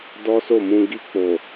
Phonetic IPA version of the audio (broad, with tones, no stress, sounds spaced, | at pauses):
d ɔ˦ s o˦˨ m ũ˧ ɡ i˧ k͡p o˨